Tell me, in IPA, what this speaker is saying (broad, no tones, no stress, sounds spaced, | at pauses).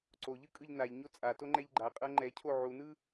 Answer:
ǀ o ʎ ɯ kʼ ɯ ʎ n a ʎ ɲ o t͡sʼ a t o ŋ͡ǃ ɛ ʎ ɡ͡ǃ a qʼ ɤ ŋ͡ǃ ɛ cʰ o ʕ u n ɯ